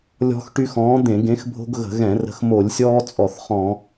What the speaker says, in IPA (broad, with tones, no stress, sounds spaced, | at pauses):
lʲ ɔ̤˦ x ʈ y˦ x ɔ̃ː˨˥ d̪ ẽ˧˩˧ ɡ ẽ˨˥ x bʱ o̤˦ ɡ ɣ ə̤˧˩˧ ɣ ɛ̃˧˩˧ r ə̤˨˥ x m o˧˩˧ lʲ sʲ ɔː˦ t͡sʼ ɔ˧˩˧ θ χ ɔ̃˧˩˧